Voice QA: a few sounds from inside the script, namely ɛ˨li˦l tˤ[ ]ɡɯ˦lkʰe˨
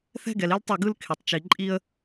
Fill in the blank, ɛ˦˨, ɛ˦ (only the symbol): ɛ˦˨